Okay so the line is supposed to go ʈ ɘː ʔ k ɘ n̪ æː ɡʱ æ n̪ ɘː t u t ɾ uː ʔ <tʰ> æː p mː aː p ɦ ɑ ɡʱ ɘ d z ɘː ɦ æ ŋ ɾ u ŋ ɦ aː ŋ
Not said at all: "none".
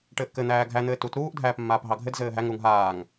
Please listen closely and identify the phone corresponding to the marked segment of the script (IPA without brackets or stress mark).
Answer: dʱ